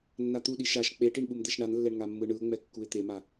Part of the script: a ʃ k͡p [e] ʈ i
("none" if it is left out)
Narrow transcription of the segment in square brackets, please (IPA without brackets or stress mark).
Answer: e